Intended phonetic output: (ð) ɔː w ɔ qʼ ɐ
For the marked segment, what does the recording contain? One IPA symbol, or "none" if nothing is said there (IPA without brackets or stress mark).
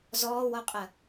z